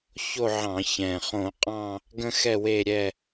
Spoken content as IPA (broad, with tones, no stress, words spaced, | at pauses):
ço˦˨ʕɑ̃˧˩˧ çɛ̃˨˩ χõ˧˩˧qʼɑ̃˦˨ | ɡə̃˦xɛ˦˨we˦˨ɾʲɛ˦˨